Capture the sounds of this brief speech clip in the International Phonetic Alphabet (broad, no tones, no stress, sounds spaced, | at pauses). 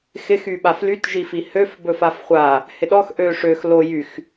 x ɪ x y ɓ a f l y t ʒ i f i h ø f b ɵ f a f χʷ a | h ɪ ɗ ɔ x ʔ ø ʂ ø x l o j y x